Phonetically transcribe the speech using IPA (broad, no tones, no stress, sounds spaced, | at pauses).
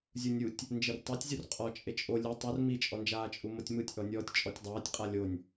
zʲ u nʲ u tʲ | n d͡ʒ e r tˤ ɛ tʲ zʲ u r qʼ ɔ t͡ʃʼ e t͡ʃʼ o lʲ ɯ tˤ u r m i t͡ʃʼ ɔ n d͡ʒ aː t͡ʃʼ u m o tʲ m ɯ tʲ ʔ ɔ nʲ ɔː tʲ t͡ʃʼ ɔ tʲ dˤ aː tʲ qʼ a lʲ o nʲ